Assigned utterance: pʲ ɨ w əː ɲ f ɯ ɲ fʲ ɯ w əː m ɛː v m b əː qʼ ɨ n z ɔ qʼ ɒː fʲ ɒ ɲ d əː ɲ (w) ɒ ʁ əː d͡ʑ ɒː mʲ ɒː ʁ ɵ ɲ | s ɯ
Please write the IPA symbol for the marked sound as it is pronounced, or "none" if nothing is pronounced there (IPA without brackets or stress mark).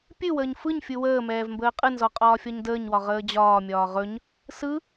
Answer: w